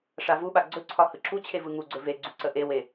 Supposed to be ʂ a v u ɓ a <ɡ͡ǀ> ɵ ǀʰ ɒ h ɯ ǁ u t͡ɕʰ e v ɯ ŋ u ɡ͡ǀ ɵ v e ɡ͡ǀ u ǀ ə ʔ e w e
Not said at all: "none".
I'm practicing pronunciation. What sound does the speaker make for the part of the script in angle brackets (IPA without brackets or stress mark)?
ɡ͡ǀ